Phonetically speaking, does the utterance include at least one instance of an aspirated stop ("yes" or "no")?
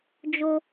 no